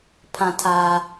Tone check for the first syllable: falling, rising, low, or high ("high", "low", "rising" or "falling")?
low